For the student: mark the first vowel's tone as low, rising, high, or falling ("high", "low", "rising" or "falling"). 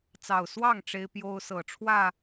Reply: low